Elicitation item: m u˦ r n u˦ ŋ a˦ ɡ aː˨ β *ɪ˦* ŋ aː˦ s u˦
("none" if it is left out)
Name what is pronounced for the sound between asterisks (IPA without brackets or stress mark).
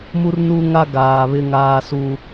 ɪ˦